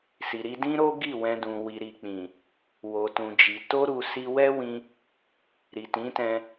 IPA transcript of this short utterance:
si˨ɾi˧dĩ˦ ɾo˦ɡi˦˨ wɛ̃˧dũ˨ wi˨ɾi˨k͡pĩ˨ | wo˨tũ˨d͡ʒi˨ to˧ɾu˨ si˧wɛ˦wĩ˧ | ɾi˨tĩ˨˦tɛ̃˧

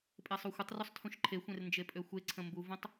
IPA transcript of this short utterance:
pʼesˤuxʷətˤrusˤ tʰũʃǃʰexʷẽr nd͡ʒepʼøxʷeǀʰə̃ mbuvõtˤ

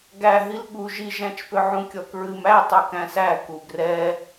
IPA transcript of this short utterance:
ɡæɦil ɠu ʒiʒæ̃t͡ʃpʏ ʕũkʲɔkɹɨm æ tˤukæ̃sæ kuɡrɛ

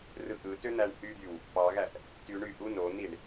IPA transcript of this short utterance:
rɯʔɯtø n̪æɳhyd̪yw | pɑɣæʔ | tyɳ yʔu non̪iɳ

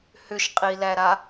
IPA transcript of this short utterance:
hʏʃqʼilæɾa

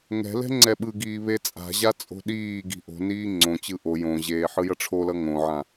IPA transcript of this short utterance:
ŋɛ̤lɛ̤ ŋ͡ǀɛɓɯɡiː βet͡sʼa̤ʑa t͡sʼo̤ɗiːɡi̤ ʔo̤niː ŋ͡ǀõt͡ɕɯ ʔo jõʑeː ħɯjʌʈ͡ʂʰolʌ ŋõʕã

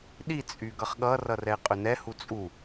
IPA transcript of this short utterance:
ɗit͡sʼy ɡʌχɠʌrʌ rɛɪ̯qʼʏnɛhu t͡sʼu

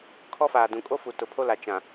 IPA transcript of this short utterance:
kʰɔ˦faː˨ dũ˨ kʼo˦fu˨ tʊ˨pʰo˦la˨ t͡ʃã˨

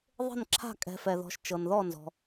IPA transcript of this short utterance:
ðˤe̤˥˨nǁʰa̤˥˨kʼɛ̤˨˦ fɛ˨ðɔ̤˨˦ʃt͡ʃɤ˨n ðɔ˥˨nzɔ̤˨

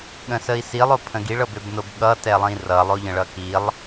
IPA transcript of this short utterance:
ɠə̃səi̯silˠ opʰə̃ɡiɭ ɤbøbnobɠʌ tɛlˠĩrʌ lˠoʎə̃ɭʌkilˠ

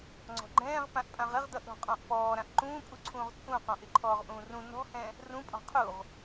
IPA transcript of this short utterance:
ŋ͡ǀɔ̤ɡ͡ǃɛ̃ːʁ pãʔpʼãʁɪʁdʌʔ ɾɔ̤qʼɔ̃ʔpɔː ɾãʔǃũːpʼuǀʰũːʁ t͡sʼũqɔ̃ʔ ɪǃʰɔːʁʔũːrũ nɔ̤hɛ̃ | rũpʼɔ̤ qʰuʁ

